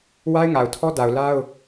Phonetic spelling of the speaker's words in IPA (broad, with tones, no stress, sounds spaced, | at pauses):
w a˦ ɪ̯ ŋ a˨ ʊ̯ tʰ ɔ˦ d a˨ ʊ̯ l a˦ ʊ̯